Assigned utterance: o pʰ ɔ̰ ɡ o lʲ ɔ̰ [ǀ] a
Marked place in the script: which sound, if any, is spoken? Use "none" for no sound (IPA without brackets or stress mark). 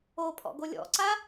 ǀ